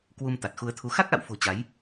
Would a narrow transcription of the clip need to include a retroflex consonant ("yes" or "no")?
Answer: no